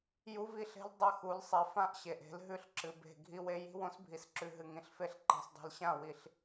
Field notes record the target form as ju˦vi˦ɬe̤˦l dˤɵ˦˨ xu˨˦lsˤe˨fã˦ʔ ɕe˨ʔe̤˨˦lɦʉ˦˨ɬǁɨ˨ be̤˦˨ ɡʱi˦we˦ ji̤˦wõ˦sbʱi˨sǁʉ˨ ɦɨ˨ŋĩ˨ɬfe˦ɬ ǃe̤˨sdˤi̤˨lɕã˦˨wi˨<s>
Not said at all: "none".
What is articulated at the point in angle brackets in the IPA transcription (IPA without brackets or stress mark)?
ɬ